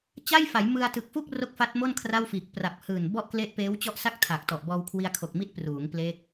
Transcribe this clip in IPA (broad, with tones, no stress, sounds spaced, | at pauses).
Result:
t͡ɕ a˥˩ j f a˩˦ j m ɯ˧ a̯ t ɯ˨˩ k̚ f u˥˩ k̚ r o˦˥ k̚ f a˦˥ t̚ m o˥˩ n kʰ r a˥˩ w f iː˨˩ k̚ p r a˨˩ p̚ h ɯː˨˩ n b ɔ˥˩ ʔ k l e˦˥ ʔ p eː˦˥ w t͡ɕ ɔ˦˥ ʔ s a˥˩ k̚ tʰ aː˨˩ k̚ t ɔ˨˩ ʔ b ɔː˧ w kʰ w i˧ a̯ kʰ o˨˩ k̚ m i˦˥ t̚ p r uː˩˦ ŋ p l e˦˥ k̚